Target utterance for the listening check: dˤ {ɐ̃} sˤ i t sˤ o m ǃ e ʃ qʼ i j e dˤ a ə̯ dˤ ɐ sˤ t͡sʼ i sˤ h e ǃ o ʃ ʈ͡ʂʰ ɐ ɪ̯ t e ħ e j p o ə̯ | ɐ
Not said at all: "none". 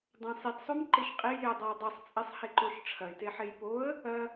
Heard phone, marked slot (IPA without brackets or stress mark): ɐ̃